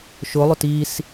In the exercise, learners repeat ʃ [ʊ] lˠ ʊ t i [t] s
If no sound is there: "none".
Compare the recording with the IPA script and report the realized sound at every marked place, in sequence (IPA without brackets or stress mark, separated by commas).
ʊ, none